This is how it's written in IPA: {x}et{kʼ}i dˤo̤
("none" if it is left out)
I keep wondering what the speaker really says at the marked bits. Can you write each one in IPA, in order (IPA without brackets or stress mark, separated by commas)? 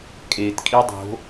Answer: kʼ, kʼ